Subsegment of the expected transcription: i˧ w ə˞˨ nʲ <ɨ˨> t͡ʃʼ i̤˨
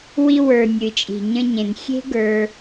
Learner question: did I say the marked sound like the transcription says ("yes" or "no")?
yes